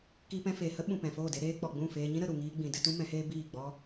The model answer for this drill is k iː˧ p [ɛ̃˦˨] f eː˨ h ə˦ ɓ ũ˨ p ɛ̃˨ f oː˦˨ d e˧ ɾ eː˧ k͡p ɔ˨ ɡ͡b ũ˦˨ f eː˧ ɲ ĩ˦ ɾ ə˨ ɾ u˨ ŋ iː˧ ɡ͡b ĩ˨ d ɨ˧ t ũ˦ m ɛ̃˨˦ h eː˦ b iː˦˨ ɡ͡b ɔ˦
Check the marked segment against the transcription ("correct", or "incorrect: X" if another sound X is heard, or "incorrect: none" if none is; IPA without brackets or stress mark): incorrect: ɛ̃˧